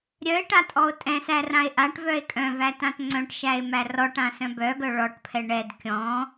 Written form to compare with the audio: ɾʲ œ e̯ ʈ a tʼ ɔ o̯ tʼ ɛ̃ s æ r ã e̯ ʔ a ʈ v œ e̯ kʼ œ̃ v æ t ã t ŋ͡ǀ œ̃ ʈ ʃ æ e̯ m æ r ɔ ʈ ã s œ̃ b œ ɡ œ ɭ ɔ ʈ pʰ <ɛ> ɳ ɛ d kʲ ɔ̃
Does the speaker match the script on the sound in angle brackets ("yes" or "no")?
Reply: yes